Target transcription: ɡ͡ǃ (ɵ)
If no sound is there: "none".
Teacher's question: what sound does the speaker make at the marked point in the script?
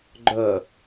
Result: œ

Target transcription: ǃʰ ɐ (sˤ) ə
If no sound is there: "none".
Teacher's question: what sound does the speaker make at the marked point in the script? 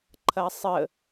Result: sˤ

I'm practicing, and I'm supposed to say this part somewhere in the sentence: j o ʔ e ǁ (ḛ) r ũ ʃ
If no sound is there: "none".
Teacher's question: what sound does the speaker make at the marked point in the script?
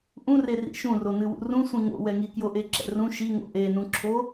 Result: ɛ̰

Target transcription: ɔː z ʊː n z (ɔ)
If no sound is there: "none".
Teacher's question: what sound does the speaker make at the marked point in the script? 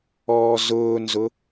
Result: ʊ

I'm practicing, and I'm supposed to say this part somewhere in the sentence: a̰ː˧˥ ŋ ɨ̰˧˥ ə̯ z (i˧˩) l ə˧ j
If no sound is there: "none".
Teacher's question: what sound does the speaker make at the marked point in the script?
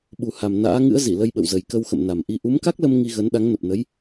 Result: i˧˩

